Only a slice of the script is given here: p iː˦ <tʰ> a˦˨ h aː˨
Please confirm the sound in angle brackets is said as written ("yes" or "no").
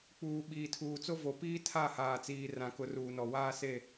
yes